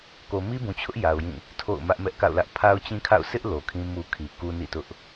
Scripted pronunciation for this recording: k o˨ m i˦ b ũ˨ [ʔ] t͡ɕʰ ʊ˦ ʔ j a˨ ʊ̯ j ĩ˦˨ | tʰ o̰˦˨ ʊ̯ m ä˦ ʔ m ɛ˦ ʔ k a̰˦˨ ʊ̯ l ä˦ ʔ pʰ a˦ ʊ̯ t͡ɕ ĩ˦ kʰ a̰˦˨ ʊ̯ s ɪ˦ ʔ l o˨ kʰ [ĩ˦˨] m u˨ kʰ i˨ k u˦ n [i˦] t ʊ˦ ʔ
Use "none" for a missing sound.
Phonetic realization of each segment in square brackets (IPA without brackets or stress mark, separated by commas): none, ĩ˦, ḭ˦˨